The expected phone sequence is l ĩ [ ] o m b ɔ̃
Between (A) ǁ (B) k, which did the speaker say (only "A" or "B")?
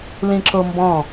A